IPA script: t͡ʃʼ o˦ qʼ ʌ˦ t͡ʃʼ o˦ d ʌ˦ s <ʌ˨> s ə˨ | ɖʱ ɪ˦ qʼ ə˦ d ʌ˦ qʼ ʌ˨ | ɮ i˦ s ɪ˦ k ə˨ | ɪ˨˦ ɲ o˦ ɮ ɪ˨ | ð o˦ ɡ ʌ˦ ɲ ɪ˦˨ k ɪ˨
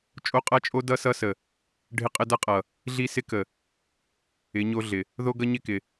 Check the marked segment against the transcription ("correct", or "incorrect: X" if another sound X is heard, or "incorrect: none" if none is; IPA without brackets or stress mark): incorrect: ʌ˦